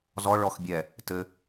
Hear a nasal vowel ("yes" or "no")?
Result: no